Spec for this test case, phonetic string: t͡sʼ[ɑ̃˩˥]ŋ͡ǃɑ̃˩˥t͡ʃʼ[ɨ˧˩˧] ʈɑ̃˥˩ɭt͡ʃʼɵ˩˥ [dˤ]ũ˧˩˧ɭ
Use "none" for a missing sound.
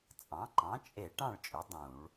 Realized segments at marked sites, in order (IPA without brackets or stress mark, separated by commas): ɑ̃˩˥, e˧˩˧, dˤ